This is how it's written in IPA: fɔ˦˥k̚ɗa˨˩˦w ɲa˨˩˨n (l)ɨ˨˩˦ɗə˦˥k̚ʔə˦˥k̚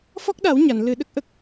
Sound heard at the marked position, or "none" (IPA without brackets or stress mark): l